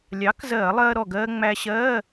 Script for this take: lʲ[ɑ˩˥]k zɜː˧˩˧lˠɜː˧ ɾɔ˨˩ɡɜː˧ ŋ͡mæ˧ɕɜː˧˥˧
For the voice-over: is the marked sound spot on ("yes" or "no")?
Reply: yes